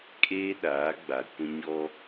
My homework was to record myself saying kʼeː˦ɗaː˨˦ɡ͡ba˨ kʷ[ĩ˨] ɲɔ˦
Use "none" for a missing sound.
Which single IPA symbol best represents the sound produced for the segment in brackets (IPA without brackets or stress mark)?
ĩ˦